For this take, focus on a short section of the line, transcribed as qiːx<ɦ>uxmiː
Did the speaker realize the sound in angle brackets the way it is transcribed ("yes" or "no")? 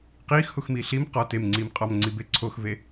no